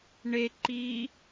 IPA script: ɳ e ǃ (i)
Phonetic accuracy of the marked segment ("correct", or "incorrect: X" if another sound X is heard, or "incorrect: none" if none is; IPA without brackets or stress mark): incorrect: iː